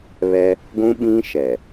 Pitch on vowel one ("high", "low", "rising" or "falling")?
high